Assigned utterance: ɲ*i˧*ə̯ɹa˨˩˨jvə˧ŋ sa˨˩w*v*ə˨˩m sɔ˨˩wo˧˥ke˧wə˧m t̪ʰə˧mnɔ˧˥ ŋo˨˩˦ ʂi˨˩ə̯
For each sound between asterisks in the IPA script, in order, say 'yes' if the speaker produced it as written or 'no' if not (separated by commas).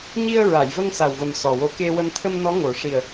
yes, yes